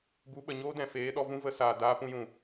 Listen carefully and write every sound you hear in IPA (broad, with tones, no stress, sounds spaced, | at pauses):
b u˨˦ ɓ ə˨ ɲ oː˦ d ɛ̃˨ f eː˨˦ ɗ ɔ˧ v ũ˦ v ə˧ s aː˨ d aː˧ p ũ˧ j ũ˨